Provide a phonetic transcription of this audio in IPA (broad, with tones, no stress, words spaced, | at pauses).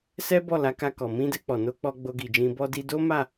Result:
sɛ˦bɔ˦˨la˨˦ka˧ kɔ˨mĩ˧dɛ˧ k͡pɔ˨no˧k͡pɔ˧ ɡ͡bo˧ɡi˨d͡ʒĩ˧ bɔ˧di˧do˦ma˦˨